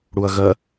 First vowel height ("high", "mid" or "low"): high